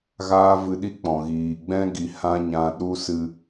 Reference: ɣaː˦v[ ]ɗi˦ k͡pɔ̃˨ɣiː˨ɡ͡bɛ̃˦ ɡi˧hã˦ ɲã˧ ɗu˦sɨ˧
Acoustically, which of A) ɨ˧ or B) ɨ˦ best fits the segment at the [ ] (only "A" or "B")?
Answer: A